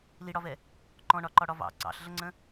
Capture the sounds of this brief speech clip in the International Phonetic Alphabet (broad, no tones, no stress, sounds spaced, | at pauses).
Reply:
l i ɽ ɒ v ɛ | ǃ ɔ̃ ɳ ɒ ǃ ɒ ɽ ɒ v ɑ̰ ǀ ɑ̰ ɬ ɮ ə ŋ͡ǀ ə̃